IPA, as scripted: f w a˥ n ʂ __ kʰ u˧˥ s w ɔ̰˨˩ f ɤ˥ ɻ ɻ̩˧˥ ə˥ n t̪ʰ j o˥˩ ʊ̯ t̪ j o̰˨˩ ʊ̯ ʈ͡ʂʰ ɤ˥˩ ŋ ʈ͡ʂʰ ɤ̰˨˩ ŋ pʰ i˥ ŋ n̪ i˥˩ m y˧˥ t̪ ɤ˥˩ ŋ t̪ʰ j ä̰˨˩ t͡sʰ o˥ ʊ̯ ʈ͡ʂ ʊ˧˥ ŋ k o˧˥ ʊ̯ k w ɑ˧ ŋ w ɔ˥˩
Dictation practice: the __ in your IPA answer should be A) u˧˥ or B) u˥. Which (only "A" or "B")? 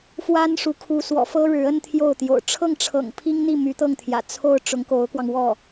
A